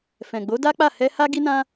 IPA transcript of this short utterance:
f ɛ̃˨ ɡ͡b o˨˦ d a˦ k͡p a˦˨ h ɛ˧ h a˦ ɡ i˦ n ã˦

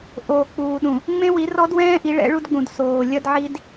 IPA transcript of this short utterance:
ʔ oː˨ k͡p uː˨ ɗ ũ˨ | ŋ͡m ẽ˦ w i˨˦ r ɔ˦ d w ɛ̃ː˦ ʔ i˨˦ ɭ ɛ̰˨˦ ɭ u˦ d ɡ͡b ũ˨ d s oː˨ lʲ ɐ˦ d ʕ i˦ d

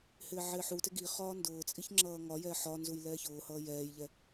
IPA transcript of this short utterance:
h ɪː ʕ ɪː ħ u t ɪ ɡ i χ ɒː n d ʊː t͡sʼ i ç ŋ͡ǁ ʌː ŋ ɒ j ɛ ħ ɒ n z u j l ɛː ç ʊː h ʌː j ɛː j ʎ ɛ

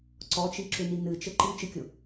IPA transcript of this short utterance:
ǀ ɔ t͡ʃ i ǁ ʏ n i n ɨ t͡ʃ ɘ ǃ i t͡ʃ ɨ kʲ ʊ

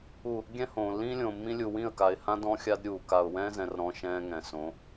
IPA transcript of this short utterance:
u˨ | ɡʲ ɛ̃˦ h õː˨ lː ĩː˦ lʲ õː˨ mː ĩ˦ lʲ u˨ w ĩ˦˨ ə̯ k a˨ ɪ̯ h ã˦ d ɔ̃˦ xʲ a˦ d ɾʲ uː˨ k a˨ ʊ̯ w ɛ̃ː˦ z ɛ̃˨ r ɾ ɔ̃˦ ʃ ɛ̃ː˦ ŋ ɛ̃˨ s õ˨˦

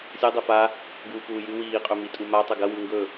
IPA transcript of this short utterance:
sʲ o dˤ e f a | ɡ uː p uː j ɨ w iː qʼ ɵ m i tʼ u m a tˤ ɵ ɡ ɐ w ʉ ŋ ɡ ɵ

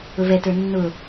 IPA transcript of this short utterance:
ʊ v ɛ t ə˞ nː ʊ

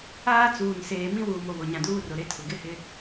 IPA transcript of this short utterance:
aː˦ t͡s uː˨ n s eː˨ m ĩ˦ w uː˨ m o˨ β o˨ ɲ ã˨ d uː˦ r ʊ˨ ɾ e˦ tʰ ʊ˨ ɡ ɪ˦ h ɪ˦

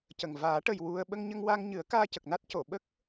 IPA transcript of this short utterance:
c ə˨˩ ŋ v aː˨˩˦ ʈ ə˨˩ j w u˧ ə̯ ɓ ə˧ ŋ ɲ ə˧ ŋ w a˧ ŋ ɲ ɨ˨˩˦ ə̯ k aː˧ c ə˨˩ k̚ n a˦˥ t̚ c o˨˩˨ ɓ ə˦˥ k̚

